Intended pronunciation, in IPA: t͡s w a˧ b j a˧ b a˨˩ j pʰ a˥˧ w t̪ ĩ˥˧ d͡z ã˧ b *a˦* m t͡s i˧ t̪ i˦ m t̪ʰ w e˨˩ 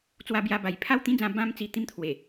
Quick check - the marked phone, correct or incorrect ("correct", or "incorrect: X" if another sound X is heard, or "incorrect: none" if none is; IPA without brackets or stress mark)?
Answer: incorrect: ã˦